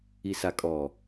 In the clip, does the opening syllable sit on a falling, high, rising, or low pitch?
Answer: low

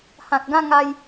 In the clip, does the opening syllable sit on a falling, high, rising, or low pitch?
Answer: low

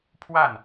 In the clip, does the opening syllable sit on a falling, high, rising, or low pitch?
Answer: falling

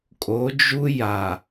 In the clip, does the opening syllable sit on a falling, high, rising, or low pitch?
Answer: rising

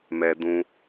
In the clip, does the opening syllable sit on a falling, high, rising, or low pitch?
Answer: high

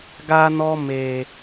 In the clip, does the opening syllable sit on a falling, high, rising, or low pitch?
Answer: high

